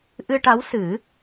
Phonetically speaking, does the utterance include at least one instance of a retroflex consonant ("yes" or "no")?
yes